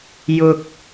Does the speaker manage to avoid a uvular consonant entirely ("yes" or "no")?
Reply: yes